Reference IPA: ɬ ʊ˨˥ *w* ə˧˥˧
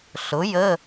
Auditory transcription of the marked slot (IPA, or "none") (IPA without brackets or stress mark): j